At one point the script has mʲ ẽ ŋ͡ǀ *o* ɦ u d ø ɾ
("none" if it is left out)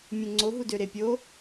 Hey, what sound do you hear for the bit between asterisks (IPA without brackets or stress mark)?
o